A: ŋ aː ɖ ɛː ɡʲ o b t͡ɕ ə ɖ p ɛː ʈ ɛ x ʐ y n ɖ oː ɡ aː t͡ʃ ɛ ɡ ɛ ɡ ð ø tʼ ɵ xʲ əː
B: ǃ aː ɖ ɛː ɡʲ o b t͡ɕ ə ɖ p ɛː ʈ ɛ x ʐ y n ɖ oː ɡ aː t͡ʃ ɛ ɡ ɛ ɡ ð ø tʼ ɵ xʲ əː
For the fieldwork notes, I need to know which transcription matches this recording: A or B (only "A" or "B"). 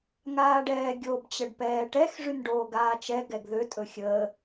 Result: A